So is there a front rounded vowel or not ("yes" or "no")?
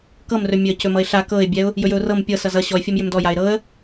yes